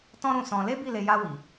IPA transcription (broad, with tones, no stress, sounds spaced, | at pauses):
t ɔ̃˦ ɾ ũ˦˨ s ɔ̃˧ l e˦ b i˦˨ l e˧ j a˧ w i˨